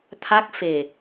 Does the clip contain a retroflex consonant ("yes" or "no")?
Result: no